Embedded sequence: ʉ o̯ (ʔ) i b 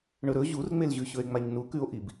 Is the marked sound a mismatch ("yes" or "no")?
no